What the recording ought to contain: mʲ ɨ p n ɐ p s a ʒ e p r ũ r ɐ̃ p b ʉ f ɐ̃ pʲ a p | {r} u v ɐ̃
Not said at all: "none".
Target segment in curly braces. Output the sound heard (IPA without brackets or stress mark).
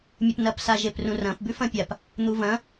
n̪